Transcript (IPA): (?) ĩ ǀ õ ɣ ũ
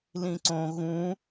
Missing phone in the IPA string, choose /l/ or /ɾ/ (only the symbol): l